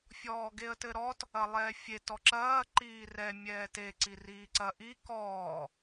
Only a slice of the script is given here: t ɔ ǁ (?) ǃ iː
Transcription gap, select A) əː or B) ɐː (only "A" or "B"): B